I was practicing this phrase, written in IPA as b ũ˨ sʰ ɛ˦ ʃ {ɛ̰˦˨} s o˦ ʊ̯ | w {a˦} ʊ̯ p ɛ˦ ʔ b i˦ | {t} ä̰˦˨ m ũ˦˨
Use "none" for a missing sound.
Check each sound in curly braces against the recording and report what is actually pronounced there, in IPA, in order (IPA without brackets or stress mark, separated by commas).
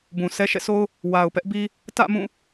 ɛ̰˦˨, a˨, t